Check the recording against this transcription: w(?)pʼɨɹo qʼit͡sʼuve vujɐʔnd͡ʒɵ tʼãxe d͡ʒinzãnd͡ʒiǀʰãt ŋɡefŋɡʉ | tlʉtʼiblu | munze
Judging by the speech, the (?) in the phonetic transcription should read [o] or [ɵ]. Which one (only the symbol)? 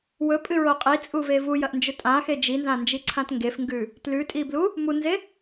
ɵ